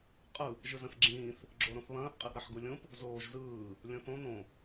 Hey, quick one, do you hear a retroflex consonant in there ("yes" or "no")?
no